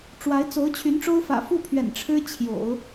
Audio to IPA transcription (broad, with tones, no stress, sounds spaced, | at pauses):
ʈ͡ʂ w a˧˥ ɪ̯ t͡s o˧˥ ʊ̯ t͡ɕʰ y˧˥ n ʈ͡ʂ o˥ ʊ̯ f ä̰˨˩ f u˥˩ pʰ ɥ ɛ̰˨˩ n ʈ͡ʂʰ ɻ̩˥ t͡ɕʰ j o̰˨˩˦ ʊ̯